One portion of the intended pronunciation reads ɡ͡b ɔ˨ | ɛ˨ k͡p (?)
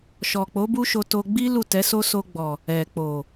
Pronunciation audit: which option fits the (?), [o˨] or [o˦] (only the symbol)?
o˨